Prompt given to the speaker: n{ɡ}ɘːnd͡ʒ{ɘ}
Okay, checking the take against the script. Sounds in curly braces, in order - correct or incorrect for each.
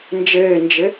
incorrect: d͡ʒ, correct

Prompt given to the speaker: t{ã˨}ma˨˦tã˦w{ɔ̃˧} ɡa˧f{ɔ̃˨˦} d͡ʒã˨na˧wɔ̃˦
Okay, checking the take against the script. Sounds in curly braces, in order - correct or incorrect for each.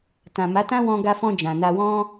correct, correct, incorrect: ɔ̃˧

